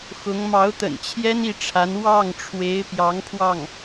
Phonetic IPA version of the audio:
x ʊ˧˥ ŋ m ɑ˧˥ ʊ̯ t̪ ə̰˨˩ n t͡ɕʰ j ɛ˥ n i˥˩ ʈ͡ʂʰ a˧˥ n w ɑ˥˩ ŋ ʈ͡ʂʰ w e˧˥ ɪ̯ p j ɑ˧˥ ŋ pʰ w ɑ˥˩ ŋ

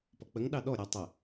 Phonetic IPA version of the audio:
p ɔ k͡p ə ŋ ɗ ɑ ɗ ɔ ɾʲ a tˤ ə

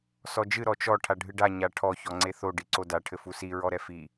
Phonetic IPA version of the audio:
s ɔ d͡ʒ ɨ ɾ ɔ t͡ʃ ɔ ʈʰ a ɖʱ ɨ ɖ a ɲ a ʈʰ ɔ ç ɔ ŋ͡ǀ e θ o ɖ i ǀ o d a ʈʰ ɘ f u s i ɹ ɔ ɾ ɛ f i

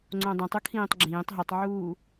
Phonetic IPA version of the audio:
ŋ͡ǀ õ dˤ ĩ tˤ u kʰ ĩː tˤ ɡ͡ǁ ĩː tˤ ɦ i tˤ ʕ uː

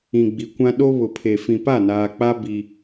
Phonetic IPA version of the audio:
ĩ˨ ɡ͡b i˨ kʷ ã˦ ɗ o˦ β ʊ˨ pʰ e˨ f ĩ˨ p a˦˨ n aː˨ k͡p a˦ b i˦

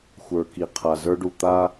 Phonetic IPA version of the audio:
xʷ ə˞˨ k i˨ qʰ a˨ z ə˞˦ ɖ u˨ t̪ a˦

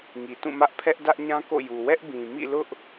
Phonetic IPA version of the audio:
ŋ i˨ t ũ˦˨ m ä˦ ʔ pʰ ɛ˦ ʔ d ä˦ ʔ ɲ ã˦ k o̰˦˨ j u˨ w ɛ˦ ʔ b ĩ˨ m ḭ˦˨ l ʊ˦ ʔ

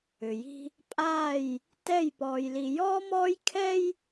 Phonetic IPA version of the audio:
ʏ˨ j i̤˦ | pʼ aː˦˨ j | t ɛ˦˨ j p ɔː˨ j l i˨ j ɔː˦ m ɔː˦ j kʰ ɛ˦ j

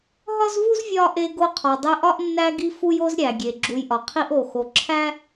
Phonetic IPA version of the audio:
ɦ ɒ˥ z v u˥ z vʲ ɒ˥ ʔ e˦ ɡ o˦ qʰ ɒ˨ dˤ e˦ ʔ ɒ˥ ʔ nː æ˦ ɡ i˦ f u˦ j o˦ z ɾʲ æ˩ ɡʲ e˩ ɡ͡ǁ u˨ j ʔ ɒ˩ qʰ i˦ ʔ o˩ x o˩ ǁʰ æ˥

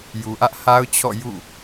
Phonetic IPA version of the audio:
j u˨ ʔ ä˦ ʔ h a˦ ʊ̯ t͡ɕʰ ɔ̰˦˨ j ṵ˦˨

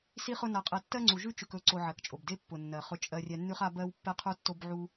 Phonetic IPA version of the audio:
s i˦ χ ʊ˦ n a˧ qʼ ɛ˧ tː ɜ˦ ŋ͡ǀ u˨ ʒ ʉ˦ t͡ʃ ʉ˨ k ɵ˨˦ ǀ o˧ ʕ ɜ˨ k t͡ʃʼ o˨ b d e˦ pː ʊ˨ nː ɜ˨ χ ʊ˧ t͡ʃʼ ɜ˧ rʲ ɛ˧ nː ʉ˦ χ a˦ b ɜ˦ w pː ɛ˦ qʰ u˦ tː o˦ b ʕ u˦

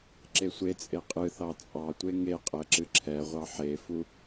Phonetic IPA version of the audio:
ǁ e sʷ e t͡sʼ e qʼ ɨ θ ɑ t͡sʼ ɑ tʷ e ŋ e qʼ ɛ ǁ ɨ ǁʰ ɛ ʁʷ ɑ ħ e f u

